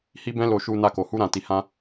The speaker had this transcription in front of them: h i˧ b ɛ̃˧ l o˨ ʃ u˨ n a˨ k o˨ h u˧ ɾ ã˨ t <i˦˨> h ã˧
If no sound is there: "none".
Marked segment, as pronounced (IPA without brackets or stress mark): i˨